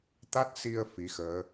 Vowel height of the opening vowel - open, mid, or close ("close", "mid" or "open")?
open